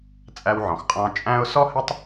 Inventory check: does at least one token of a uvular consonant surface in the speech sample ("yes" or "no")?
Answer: yes